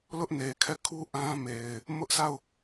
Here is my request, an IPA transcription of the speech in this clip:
l ʊ˦ ʔ n e˨ kʰ ɛ˦˨ kʰ u˦ ʔ ã˦ m e˨ ɪ̯ | m ʊ˦ ʔ sʰ a˦˨ ʊ̯

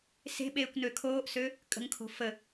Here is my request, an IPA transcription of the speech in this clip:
s e̤ ɓ eː kʷ n ø kʰ oː ʔ s ø | kʼ ə̤ ŋ kʰ o̤ f ə

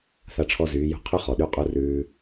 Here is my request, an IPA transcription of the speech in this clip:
θ a˦ ʈ͡ʂʰ ɔ˦ z yː˨˦ j ṳ˦ qʰ ʉ˦ χ ɔ˨ ɗ y˦ qʼ u˦ r ʉː˧

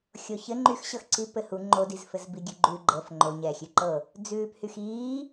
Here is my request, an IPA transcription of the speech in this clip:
xʲ o ç ɘ ŋ͡ǃ y x ɕ ɤ x ǀ i p ɘ h u ŋ͡ǃ o d i z f ɘ z b i ɡʲ ʉ ɡ͡ǃ ʉ ɡ͡ǃ ɤ f ŋ͡ǃ o ɲ ɛː xʲ ʉ ǃ ɤ | d͡z ʉː p h y x iː

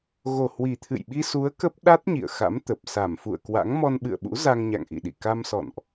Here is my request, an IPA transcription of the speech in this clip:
ɣ o˨˩ h w i˨˩ t̪ʰ ɨ̰˧˨ j ɓ i˧ s u˨˦ ə̯ k ə˦˥ p̚ ɗ a˦˥ t̚ ɲ ḭ˧˨ ə̯ x a̰˧˥ m t̪ ə˨˩ p̚ s a˧˩ m f ṵ˧˨ ə̯ k w a̰˧˥ ŋ m ɔ˧ n ɓ ɨ̰˧˨ ə̯ ɓ ṵ˧˥ z a˧ ŋ ɲ a̰˧˨ ŋ ʔ ḭ˧˨ ɗ ḭ˧˨ k a˧ m s ɔ̰˧˨ n ʔ

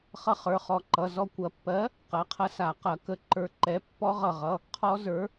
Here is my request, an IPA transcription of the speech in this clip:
χ ʌ˦˥ χ ə˞˩˧˩ χ ɔ˧˩ ǃ ʌ˩˧˩ z ɔ˧˩ kʷ ɐ˨˩˦ pː ɜ˨˥ | q ɐ˩˧˩ qʰ ɐ˧ s a˨˩˦ q ɐ˨˩˦ k ə˧˩ ǃ ə˞˧ ǃ ɛ˨˥ pː ɔ˦˥ ʁ ʌ˧˩ ʁ ʌ˩˧˩ | qʰ ɔ˦˥ z ə˞˨˥

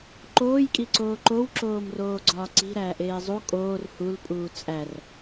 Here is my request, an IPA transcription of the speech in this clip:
ǃ oː j kʼ i ǀ oː ǃ o w ǁ oː m r oː ɡ͡ǀ ɒː ǀ i̤ ɾ æː ʔ eː zˤ u kʼ oː r h u l pʼ uː t͡sʼ æ r

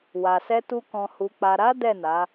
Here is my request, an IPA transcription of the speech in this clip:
w a˨ s ɛ˧ t u˧ k ɔ̃˨ h u˨ k͡p a˨ ɾ a˨˦ d ɛ˦˨ n a˨˦

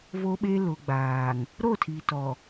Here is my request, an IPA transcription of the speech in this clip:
v o˦ ɓ e˦ l ʊ˨ ɡ͡b aː˨ ŋ | ɾ o˦˨ tʰ iː˨ t ɔ˨

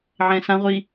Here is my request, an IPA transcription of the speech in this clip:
ʕ ɛ̃ s ã ʁʷ i

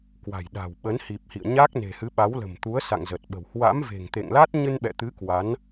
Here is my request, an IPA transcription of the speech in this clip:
k w a̤˨˩ j ɗ a̤˨˩ w ɓ ə˨˦ n h i˨˩ p̚ h ḭ˧˨ ə̯ ɲ aː˦˥ k̚ n e̤˨˩ h ɨ˨˦ ɓ a˨˦ w l ə̤˨˩ m t̪ u˨˦ ə̯ s a̰˧˨ ŋ z ə˨˩ t̚ ɓ ə̤˨˩ w h w a̰˧˥ m v e̤˨˩ ŋ t̪ ḛ˧˨ ŋ l a˦˥ t̚ ɲ ɨ˧ n ɓ ɛ̰˧˨ t̪ ɨ˨˦ k w a˨˦ n

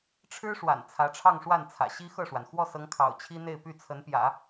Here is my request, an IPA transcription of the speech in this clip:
ʈ͡ʂʰ ɻ̩˥ ʂ w a̰˨˩ n t͡sʰ ä˧˥ ʈ͡ʂʰ ɑ˥˧ ŋ ʂ w a˥˩ n t͡sʰ ä̰˨˩ ɕ i˥ x ɤ˥˩ ʂ w a˩ n x w ɔ˥˩ s ɤ˧˥ ŋ kʰ ɑ̰˨˩ ʊ̯ t͡ɕʰ i˥ n̪ e˥˧ ɪ̯ p y˥˩ t͡sʰ ə˧˥ n p j ä̰˨˩˦

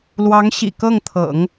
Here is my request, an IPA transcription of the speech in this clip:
l w ɑ˧˥ ŋ ɕ ḭ˨˩ k ɤ˥˩ ŋ t̪ʰ ɤ̰˨˩˦ ŋ

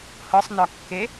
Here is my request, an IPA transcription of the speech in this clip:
h ɤ sˤ n ɒ kː e

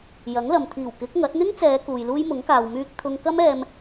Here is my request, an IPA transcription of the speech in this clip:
j ɐ˨˥ ŋ l ɐ˨ m t̪ʰ iː˨˩ w k ɪ˨˥ k̚ ŋ ɐ˨˥ t̚ n̪ ɪ˥ ŋ t͡s ɛː˨˧ k uː˨ j l uː˥ j m ʊ˨˥ ŋ k aː˨ w m yː˧ k̚ t̪ʰ ʊ˧ ŋ k ɐ˥ m ɛː˧ m

